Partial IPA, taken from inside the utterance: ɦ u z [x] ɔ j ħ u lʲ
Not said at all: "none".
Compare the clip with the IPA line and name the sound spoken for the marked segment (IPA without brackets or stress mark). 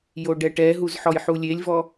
ħ